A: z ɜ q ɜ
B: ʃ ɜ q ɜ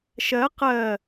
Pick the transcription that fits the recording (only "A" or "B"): B